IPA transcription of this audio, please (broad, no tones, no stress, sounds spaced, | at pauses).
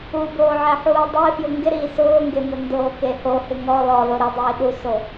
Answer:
u b oː ʕ ɛ ħ uː dˤ e f j ʊ ŋ ɡ ɪ ɾ iː s ʊː ŋ ɡ e m ʊ n d oː k e h o h ɪ ŋ ɔ l ɔ l o ɾ ɪ dˤ iː ɗ u s o